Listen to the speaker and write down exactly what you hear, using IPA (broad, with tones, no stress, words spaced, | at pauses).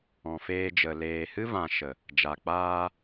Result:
ɔ̃˨feː˧d͡ʒə˨ leː˨hɨ˦vã˨ ʃə˨ | d͡ʒa˨ k͡paː˧